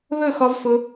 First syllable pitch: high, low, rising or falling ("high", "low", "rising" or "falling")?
falling